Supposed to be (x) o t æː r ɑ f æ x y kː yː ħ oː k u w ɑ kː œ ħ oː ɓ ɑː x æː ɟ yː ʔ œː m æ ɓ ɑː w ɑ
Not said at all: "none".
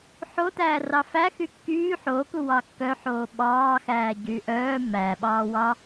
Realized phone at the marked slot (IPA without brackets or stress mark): ħ